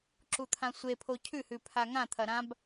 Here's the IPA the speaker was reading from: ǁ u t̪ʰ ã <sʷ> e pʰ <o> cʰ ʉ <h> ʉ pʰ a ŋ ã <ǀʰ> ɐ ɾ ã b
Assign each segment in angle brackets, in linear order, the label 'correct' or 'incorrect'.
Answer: correct, correct, correct, incorrect: t̪ʰ

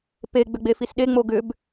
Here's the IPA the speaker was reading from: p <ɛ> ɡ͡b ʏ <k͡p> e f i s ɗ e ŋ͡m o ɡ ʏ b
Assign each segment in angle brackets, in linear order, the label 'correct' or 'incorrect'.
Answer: incorrect: e, incorrect: ɡ͡b

